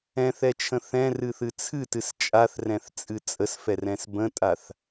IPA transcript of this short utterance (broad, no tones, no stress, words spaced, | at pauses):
ɛ̃θɛt͡ʃʰə̃ θɛ̃rɨθɨ t͡sʰɨtɨs t͡ʃʼaθrɛ̃θt͡sʼɨ t͡sʼəsfɛrɛ̃s bə̃tʼaθ